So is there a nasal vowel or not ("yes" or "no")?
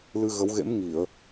no